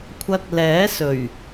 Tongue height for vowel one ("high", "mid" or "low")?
low